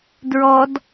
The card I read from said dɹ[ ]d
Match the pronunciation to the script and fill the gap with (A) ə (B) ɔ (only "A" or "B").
B